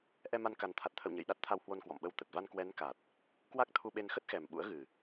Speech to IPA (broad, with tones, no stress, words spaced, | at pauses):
ʔɛ˧ma˧n ka˨˩nt̪ʰa˨˩t̚t̪ʰə̰˧˨w ɲə̰˧˨jɗa˦˥t̚ t̪ʰa˧whwo˧n kwɔ̰˧˨mɓə˧w t̪ə˨˩t̚va˧n kwɛ˨˦nka˨˩t̚ | kwa˦˥k̚t̪ʰu˧ɓe˧n xə˦˥t̚xɛ˨˩m ɓṵ˧˥ə̯ɣɨ˨˩